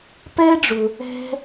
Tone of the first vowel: high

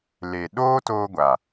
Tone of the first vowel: low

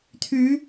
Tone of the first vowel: rising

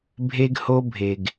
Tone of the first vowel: high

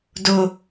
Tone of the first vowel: high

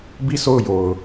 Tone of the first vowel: falling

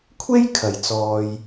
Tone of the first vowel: high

